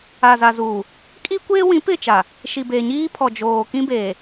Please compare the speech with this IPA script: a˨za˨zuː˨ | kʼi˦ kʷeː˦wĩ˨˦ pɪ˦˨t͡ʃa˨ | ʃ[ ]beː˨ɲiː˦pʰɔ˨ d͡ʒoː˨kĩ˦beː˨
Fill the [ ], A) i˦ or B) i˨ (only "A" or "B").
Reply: B